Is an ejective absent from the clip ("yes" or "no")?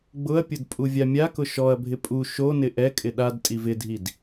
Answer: no